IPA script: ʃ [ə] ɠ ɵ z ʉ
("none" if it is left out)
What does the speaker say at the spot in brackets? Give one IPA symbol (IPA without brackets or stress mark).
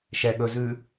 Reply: ɛ